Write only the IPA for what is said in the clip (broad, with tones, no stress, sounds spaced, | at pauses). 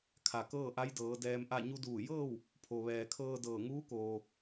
kʰ a˩ k ɤː˥˨ ʔ a˧˥ j d ɤː˩˧ d ɛː˧ m ʔ a˥˨ ɲ u˧ d uː˧˩ j ɤː˥˨ w | pʰ o˩ ʋ ɛː˩ kʰ ɤː˧ d ɤː˧˩ ŋ uː˧˥ k oː˩